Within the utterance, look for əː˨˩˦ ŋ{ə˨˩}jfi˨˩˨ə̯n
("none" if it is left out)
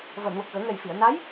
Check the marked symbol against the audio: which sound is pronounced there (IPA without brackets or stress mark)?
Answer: ɛ˨˩